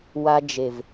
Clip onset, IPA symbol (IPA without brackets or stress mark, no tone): w